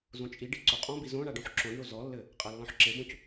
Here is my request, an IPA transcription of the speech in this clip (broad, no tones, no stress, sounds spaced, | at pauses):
z õ t͡ʃʼ i ɖ i ǀ o qʼ ɔ̃ b i z õ ɳ a ɖ õ ħ ǁ õ ɖ ɳ o z ɔ lː ɘ | qʼ a lː ɔ̃ ħ ǁ e b õ c